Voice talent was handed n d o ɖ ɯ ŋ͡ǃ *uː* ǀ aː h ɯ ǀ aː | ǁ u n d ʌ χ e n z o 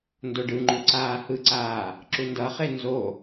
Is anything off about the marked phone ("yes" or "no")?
yes